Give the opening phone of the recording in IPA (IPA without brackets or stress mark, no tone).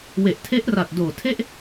w